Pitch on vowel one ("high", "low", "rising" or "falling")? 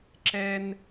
high